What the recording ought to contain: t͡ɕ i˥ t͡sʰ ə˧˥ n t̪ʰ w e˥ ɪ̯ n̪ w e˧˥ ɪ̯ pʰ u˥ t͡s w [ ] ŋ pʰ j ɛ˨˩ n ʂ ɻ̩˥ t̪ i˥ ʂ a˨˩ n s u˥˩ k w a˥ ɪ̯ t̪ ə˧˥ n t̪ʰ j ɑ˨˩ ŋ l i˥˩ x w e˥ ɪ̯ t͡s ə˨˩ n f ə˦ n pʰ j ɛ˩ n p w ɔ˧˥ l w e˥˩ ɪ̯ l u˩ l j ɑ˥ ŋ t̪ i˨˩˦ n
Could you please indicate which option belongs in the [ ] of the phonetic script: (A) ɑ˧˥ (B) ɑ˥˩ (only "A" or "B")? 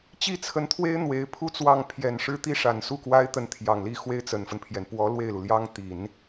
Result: B